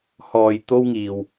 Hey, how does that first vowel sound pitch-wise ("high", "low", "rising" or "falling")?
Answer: low